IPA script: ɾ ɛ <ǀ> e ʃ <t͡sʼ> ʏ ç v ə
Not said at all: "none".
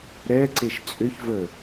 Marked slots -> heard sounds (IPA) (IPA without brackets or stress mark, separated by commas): ǀ, t͡sʼ